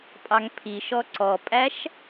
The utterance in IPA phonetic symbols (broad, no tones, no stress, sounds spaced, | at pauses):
pʼ ɑ ŋ pʰ i ʃ ɔ ǀ ɔ pʼ æ ʃ